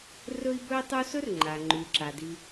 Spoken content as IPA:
rɵ˦i̯bɵ˦i̯tˤu˦sɵ˥r ŋ͡ǃa˩ŋ͡ǃʉ˩ǁa˩di˨

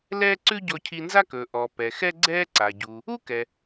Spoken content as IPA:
lɛː˥ ǀʉ˥ɟɔ˧ cʰi˧nza˥kɵː˩ ʔɔ˩ pɛ˩ xɛ˥ɡ͡ǀɛː˥ǀa˩ɟuː˩ | u˥kɛ˩

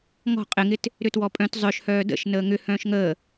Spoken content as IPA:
ŋɔ̤ qʼɪŋɪt | ɾʏtwɔpʼœ̃t zˤœʃhœː də̰ʃ nəːŋʏ hœ̃ːʃŋəː

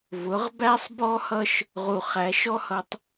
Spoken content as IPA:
vʊ˨˦ʁbæ˦sˤbɔ˦hʌ˦ʃ | ʁu˨χæ˨˦ʃɔ˦hʌ˨tˤ

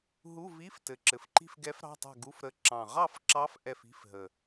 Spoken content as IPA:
ɦu˧˥˧vi˧˥˧ftɘ˨˩ ǁɘ˨˩fǃi̤˥˨fɡɛ˧˥f ɾɑ̤˧˥˧tˤɛ̤˥˨ɡu˧˥˧fɾə˧˥ ǁɑ̃˨˩ʁɑ˥˨fǁɑ˧˥f ʔɛ˥˨fi̤˧˥˧fɦə˨˩

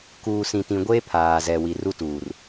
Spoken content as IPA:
kuː˨sĩ˨tĩ˨ ɡʷeː˦pʰaː˨zɛ˨ wi˨ru˦tuː˨r

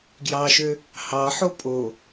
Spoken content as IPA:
ɡjɑʃø | hɑħo pʼo

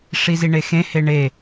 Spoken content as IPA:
ʂiziɳexẽ heɳe

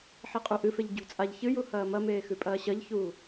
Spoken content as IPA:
ħiqʼuʔɨfeʎ ɟṳt͡sʼaʎ çɨju hɐːmɐmeː xʉpʼɐːɕɐʎçuː

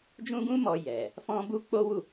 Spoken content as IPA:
d͡ʒũ˦ɡũ˦ mɔ˧ jɛ˨ | fɔ̃˦bu˦ k͡po˦wu˦˨

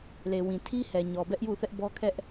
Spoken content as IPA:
le˨wĩ˨ tʰi˦ hɛ˨ɲɔ˨ bɛ˦ʔju˦˨θɛ˦ʔbɔ˦ kʰɛ˦ʔ

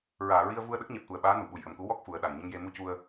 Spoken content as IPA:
ɹaː˨˩˨ɹi˧ə̯vu˧ə̯ ɗə˦˥k̚ɲɛ˨˩p̚t̪u˨˩ə̯ɓaː˧˥ nu˨˩˨ɓu˨˩jʔə˨˩mku˧˥ wɔ˦˥k̚ fu˨˩˦ə̯ɗa˨˩ŋ ɲə˧ŋje˧ mu˧cu˧ə̯

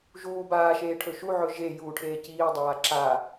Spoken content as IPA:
ʒuː baːʃeːʈʰɵ ʃuʕɵ ʒejuːʈʰeː ciːdˤaː ǁa

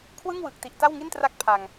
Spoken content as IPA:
kʰwɯ˥˩ŋwɯ˨˩k̚ ti˨˩ʔta˥˩wŋi˥˩ntra˦˥k̚ pʰa˨˩ŋ

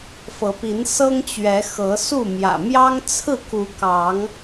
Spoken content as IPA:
fɤ˨˦pi˨˦n sɤ˦ŋt͡ɕɥɛ˨˦xɤ˨˦su˥˨ mjä̰˨˩mjɑ˦ŋ t͡sʰɹ̩˥˨ku˨˦kɑ˨˦ŋ

